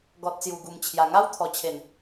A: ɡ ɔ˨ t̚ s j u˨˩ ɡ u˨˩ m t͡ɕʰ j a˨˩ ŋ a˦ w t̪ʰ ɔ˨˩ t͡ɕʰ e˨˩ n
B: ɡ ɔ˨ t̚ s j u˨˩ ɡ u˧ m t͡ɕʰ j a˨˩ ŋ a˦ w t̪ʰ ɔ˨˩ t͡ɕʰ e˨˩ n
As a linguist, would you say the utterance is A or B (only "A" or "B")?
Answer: A